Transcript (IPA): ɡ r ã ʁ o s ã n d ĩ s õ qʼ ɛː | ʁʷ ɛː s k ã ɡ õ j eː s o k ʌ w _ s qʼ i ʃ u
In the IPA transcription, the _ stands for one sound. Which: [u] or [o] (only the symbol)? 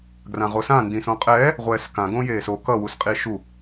u